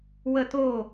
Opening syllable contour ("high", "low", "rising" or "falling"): falling